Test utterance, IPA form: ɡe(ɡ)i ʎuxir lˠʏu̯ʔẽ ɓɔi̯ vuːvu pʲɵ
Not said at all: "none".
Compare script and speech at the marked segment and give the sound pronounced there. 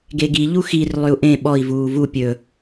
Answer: ɡ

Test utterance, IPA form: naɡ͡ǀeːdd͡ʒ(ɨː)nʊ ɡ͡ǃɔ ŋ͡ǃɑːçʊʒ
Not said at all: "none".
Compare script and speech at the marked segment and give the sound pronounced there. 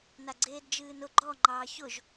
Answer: ɨː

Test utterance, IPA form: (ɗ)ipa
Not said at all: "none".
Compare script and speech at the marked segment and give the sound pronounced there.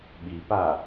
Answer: ɓ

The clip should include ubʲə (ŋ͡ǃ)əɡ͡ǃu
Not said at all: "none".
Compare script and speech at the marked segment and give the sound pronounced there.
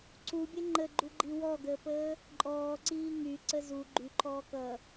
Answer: ŋ͡ǃ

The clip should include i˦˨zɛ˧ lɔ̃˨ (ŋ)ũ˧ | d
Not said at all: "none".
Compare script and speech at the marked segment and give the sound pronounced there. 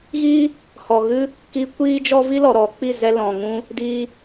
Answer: ŋ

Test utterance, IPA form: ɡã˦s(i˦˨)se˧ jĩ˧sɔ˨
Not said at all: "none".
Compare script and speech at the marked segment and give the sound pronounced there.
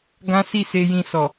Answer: i˦˨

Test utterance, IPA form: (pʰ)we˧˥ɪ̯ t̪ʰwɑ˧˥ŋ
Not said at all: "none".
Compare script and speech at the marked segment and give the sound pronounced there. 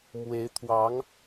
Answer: m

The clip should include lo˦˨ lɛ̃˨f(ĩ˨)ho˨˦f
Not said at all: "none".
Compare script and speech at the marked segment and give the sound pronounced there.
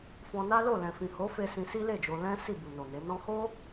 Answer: ĩ˨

